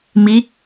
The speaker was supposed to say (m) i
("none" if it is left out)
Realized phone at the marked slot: m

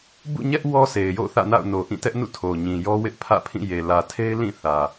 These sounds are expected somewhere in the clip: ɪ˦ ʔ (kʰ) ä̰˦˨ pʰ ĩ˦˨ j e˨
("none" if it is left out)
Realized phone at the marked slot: pʰ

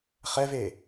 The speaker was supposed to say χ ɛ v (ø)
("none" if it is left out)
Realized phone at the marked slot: e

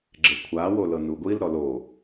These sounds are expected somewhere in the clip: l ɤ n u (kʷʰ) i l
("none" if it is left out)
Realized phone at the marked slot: ɡʷ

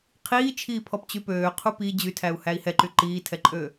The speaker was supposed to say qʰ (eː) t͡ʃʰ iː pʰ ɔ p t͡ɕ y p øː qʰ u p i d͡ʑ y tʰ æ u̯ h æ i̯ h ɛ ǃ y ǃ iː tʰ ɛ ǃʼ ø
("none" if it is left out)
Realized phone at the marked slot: iː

